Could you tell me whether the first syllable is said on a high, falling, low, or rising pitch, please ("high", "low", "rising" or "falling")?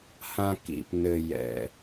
high